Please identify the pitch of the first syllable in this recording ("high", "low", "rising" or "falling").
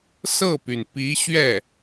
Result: falling